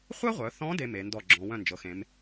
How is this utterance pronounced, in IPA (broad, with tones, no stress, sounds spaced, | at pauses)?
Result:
χʷ œ˥ ʁʷ œ˩˧ θ ɔ̃˧˥ d e˥ m e˩˧ n d ɔ˥˩ ɡ͡ǁ ɔ̃˩˧ w œ̃˥˩ n d͡ʒ ɤ˩˧ x ẽ˩˧ m